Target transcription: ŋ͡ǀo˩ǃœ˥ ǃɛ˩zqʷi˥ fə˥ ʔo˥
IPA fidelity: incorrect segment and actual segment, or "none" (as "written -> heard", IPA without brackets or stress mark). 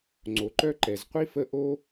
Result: none